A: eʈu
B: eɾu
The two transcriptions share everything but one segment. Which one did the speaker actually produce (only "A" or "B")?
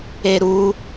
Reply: B